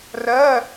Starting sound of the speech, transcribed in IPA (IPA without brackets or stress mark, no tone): r